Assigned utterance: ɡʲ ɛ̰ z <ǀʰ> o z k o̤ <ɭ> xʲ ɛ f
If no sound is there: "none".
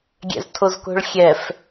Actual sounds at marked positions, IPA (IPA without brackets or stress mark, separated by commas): tʰ, ɭ